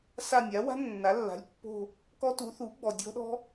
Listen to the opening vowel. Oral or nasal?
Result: oral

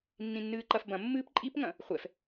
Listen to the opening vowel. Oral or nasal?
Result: nasal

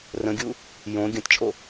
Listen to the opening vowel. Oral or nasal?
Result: nasal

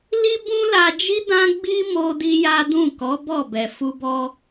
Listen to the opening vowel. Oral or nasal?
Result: oral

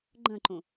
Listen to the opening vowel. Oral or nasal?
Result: nasal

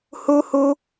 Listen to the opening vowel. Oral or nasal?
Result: oral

